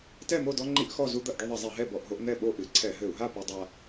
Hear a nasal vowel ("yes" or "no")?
no